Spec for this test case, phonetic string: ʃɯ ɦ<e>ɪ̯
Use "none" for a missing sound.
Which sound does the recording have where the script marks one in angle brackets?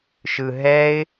ɛ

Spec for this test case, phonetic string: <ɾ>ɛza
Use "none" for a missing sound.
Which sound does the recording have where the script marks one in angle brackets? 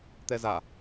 t̪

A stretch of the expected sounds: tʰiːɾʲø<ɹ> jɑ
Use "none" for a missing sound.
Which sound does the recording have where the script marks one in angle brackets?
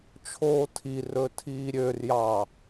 r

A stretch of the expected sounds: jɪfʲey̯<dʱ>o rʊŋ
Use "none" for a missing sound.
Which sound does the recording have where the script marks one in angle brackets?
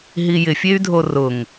dʱ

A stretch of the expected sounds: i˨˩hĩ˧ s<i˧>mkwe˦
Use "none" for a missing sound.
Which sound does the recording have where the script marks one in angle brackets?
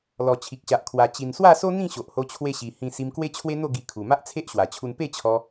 i˧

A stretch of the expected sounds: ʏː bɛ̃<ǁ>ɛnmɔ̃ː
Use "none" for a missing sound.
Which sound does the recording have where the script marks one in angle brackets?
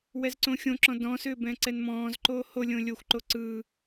ǀ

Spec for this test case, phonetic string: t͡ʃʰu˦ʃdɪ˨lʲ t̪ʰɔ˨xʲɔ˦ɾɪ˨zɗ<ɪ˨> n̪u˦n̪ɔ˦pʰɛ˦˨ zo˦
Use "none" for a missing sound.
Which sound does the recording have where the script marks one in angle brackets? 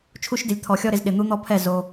ɪ˨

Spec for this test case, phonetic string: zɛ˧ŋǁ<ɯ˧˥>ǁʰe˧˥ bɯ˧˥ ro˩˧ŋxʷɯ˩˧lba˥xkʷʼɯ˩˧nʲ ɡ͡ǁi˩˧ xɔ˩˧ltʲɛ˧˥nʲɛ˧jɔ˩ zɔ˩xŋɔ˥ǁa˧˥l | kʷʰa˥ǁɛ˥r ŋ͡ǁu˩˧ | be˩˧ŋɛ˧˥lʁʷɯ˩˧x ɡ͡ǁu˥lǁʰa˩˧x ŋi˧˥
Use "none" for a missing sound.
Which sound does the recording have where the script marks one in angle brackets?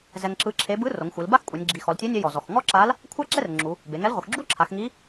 ɯ˧˥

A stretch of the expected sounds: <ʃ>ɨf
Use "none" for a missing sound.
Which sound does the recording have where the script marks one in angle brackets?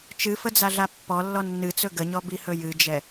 t͡ʃ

